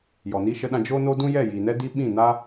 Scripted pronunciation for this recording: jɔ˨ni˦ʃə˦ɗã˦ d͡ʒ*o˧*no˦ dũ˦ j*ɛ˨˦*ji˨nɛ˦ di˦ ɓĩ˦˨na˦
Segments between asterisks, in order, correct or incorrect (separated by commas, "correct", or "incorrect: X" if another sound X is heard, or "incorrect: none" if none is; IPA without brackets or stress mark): incorrect: o˦, incorrect: ɛ˦˨